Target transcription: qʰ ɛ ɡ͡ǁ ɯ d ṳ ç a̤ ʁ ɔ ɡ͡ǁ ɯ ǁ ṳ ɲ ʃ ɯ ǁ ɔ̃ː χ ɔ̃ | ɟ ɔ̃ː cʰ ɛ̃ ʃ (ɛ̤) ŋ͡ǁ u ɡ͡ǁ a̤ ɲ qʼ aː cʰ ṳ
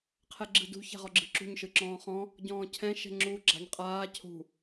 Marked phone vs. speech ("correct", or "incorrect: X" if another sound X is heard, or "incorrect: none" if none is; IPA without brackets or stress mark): correct